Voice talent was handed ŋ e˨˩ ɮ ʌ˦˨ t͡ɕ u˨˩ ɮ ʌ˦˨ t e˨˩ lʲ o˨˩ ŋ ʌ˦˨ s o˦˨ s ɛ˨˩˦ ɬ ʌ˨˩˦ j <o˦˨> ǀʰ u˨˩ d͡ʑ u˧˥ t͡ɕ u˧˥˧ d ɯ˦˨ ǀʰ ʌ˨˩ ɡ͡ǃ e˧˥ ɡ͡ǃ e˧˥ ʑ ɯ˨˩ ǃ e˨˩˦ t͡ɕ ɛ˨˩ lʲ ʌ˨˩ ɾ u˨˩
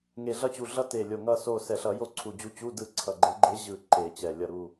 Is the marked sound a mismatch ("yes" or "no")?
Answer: no